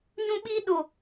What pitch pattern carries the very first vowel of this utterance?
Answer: high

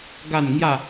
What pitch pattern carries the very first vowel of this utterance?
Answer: falling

